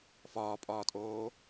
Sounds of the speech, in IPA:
f ɒː pʼ ɒː tʼ oː

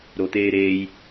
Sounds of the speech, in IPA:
ɾ o t̪ eː ɾ eː j

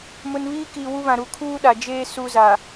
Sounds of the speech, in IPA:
m ʊ˨ n β iː˦ k i˨ w u˦ β ã˨ ɾ u˨ kʰ uː˦ ɗ a˨ d͡ʒ eː˦ s u˦ z a˨

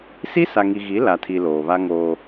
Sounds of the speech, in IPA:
s i˦ s a˨ ŋ i˨ ɣ i˨˦ l a˨ tʰ i˨ l oː˨ β a˦ ŋ oː˦

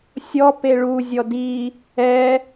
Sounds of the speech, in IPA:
sʲ ɔ p e ɭ u zʲ ɔ d i | ɛ

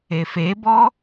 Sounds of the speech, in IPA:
e f e b ɔ

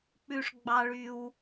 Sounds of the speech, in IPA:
k͡p ʉ˨ ʂ ɡ͡b ɑ˨ ɭ y˨ w

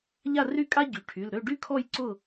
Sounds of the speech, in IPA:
ʎ a˥˨ r y˥˨ kʼ a˥ ɟ y˩˧˩ ʈʰ y˩˧˩ l ɾ ø˥˨ ɖ y˥ kʰ ɔ˥˨ j ǀ ʊ˥˨

